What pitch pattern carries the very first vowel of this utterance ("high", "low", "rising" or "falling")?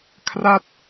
falling